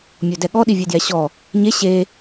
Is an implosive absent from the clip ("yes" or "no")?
no